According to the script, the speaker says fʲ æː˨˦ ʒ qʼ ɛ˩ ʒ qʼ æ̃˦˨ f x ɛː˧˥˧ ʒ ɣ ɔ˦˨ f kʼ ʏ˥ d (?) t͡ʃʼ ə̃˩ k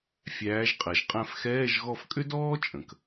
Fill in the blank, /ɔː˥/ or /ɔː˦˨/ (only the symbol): ɔː˥